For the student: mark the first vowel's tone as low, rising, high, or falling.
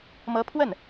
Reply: rising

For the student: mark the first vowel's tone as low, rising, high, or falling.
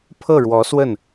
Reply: falling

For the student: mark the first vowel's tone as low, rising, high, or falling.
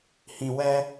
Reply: low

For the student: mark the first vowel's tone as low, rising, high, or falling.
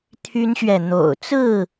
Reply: high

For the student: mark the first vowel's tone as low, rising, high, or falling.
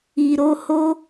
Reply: low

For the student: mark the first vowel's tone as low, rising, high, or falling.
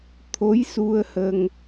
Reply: rising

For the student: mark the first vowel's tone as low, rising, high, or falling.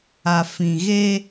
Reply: low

